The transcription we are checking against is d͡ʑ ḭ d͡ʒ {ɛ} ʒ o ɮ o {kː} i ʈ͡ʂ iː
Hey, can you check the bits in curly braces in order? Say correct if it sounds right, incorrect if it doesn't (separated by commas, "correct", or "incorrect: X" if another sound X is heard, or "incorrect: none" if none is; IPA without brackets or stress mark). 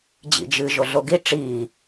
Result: incorrect: ɨ, incorrect: ɡ